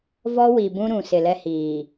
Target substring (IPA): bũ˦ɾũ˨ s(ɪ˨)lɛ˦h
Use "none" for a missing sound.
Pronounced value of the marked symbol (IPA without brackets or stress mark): ɪ˨